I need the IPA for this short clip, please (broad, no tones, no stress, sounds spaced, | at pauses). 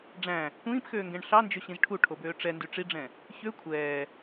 ɖ͡ʐ æ̃ | kʷ ĩː p x øː ŋ ɡ ɛ̃ ɳ ɬ ɑ n d͡ʒ ɵ ɕ ĩ z ʈʰ u ʈʰ o b øː ʈ͡ʂ ɛ n d y ʈ͡ʂ i ɖ͡ʐ ɛ̃ | ç ø kʷʰ ɛː